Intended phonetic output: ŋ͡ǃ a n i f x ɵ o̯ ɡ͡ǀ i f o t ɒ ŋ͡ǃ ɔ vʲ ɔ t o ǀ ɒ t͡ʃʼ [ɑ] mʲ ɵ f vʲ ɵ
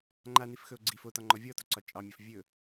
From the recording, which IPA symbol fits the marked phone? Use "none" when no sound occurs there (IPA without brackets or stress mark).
ɑ